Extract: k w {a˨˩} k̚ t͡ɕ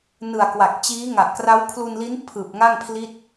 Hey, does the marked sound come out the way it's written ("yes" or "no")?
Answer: yes